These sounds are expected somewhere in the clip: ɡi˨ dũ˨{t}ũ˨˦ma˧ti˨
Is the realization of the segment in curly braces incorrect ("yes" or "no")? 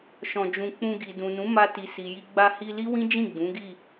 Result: yes